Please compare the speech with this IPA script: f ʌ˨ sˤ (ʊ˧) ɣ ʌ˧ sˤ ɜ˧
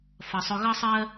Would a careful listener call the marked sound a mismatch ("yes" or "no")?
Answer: no